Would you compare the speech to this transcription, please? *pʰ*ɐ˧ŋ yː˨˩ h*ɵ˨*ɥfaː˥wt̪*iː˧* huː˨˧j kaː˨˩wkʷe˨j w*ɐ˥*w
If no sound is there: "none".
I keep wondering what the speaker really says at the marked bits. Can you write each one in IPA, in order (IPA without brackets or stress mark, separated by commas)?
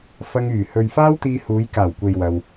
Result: f, ɵ˨, iː˧, ɐ˧